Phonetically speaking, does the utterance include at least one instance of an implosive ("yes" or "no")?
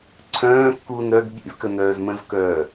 yes